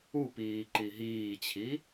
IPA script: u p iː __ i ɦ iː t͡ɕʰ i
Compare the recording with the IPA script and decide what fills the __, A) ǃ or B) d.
A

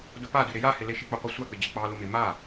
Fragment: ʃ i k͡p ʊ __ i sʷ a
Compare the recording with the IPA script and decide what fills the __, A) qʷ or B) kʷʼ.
A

